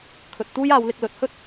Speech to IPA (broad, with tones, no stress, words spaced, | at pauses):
kʰɵ˨t̚t̪uː˥jaː˨˧wlɪ˧k̚ lɵ˨t̚hɵ˥t̚